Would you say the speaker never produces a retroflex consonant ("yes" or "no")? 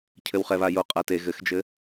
yes